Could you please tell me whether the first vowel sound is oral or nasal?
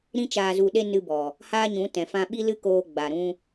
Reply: nasal